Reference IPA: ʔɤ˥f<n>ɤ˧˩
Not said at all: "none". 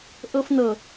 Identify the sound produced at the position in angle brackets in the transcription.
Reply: n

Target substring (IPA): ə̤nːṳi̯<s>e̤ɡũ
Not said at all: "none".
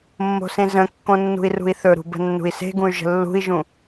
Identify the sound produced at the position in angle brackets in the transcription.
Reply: s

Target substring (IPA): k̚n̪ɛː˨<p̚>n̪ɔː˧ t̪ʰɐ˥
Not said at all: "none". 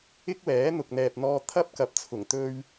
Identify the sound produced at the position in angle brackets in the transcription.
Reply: p̚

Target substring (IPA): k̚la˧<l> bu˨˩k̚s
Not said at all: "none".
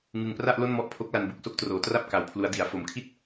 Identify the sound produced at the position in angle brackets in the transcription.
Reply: n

